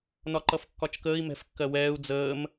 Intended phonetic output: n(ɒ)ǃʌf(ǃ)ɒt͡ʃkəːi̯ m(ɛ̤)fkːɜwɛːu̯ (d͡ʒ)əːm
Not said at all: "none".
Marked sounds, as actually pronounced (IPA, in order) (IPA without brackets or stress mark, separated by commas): ɒ, kː, ɛ̤, d͡z